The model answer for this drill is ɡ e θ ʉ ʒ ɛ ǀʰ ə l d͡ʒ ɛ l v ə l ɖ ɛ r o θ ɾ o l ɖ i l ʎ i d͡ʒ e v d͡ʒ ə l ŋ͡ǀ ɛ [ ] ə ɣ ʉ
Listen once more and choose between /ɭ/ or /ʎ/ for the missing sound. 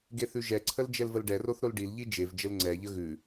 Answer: ʎ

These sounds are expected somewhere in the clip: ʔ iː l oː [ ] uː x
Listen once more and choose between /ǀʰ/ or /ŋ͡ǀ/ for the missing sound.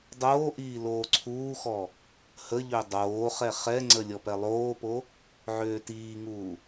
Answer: ǀʰ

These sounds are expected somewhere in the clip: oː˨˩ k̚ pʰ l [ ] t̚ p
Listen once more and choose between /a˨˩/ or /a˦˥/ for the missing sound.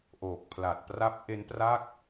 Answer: a˨˩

